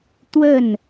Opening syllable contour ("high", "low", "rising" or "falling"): falling